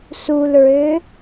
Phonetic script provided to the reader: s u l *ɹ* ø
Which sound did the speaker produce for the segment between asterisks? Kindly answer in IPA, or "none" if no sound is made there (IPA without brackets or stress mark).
ɹ